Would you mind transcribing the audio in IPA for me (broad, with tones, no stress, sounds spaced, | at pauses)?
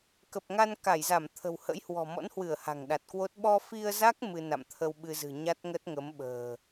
k ə˨˩ p̚ ŋ a˧ n k a˧˩ j z a˧˩ m t̪ʰ ə̤˨˩ w h ə̰˧˥ j h w ɔ̤˨˩ m ɔ̰˧˥ n h w ɨ˧˩ ə̯ h a̤˨˩ ŋ ɗ a˨˩ t̚ k w o˦˥ t̚ ɓ ɔ˧ f i˧ ə̯ z a˦˥ k̚ m ɨ˧ n a̰˧˨ m t̪ʰ ə˧ w ɓ ɨ˧ z ɨ̤˨˩ ɲ a˦˥ t̚ ŋ ə˦˥ t̚ ŋ ə˨˦ m ɓ ə̤ː˨˩